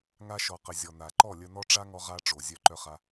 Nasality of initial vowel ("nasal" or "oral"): oral